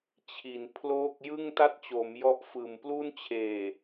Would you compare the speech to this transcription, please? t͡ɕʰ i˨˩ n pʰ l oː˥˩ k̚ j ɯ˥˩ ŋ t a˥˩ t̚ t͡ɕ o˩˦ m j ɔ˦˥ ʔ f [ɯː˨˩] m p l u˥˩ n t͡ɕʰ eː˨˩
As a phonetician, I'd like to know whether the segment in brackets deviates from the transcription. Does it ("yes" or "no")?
no